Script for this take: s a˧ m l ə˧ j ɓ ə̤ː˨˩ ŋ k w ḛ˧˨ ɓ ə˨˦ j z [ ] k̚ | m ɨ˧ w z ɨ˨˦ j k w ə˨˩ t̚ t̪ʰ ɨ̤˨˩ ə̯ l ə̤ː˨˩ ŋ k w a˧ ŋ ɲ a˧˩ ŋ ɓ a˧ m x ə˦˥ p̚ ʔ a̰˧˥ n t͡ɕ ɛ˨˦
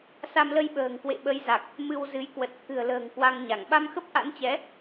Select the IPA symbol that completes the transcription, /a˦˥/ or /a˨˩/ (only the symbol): a˨˩